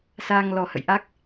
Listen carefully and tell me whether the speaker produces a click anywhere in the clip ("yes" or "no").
no